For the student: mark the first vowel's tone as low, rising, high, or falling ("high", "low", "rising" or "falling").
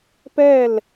falling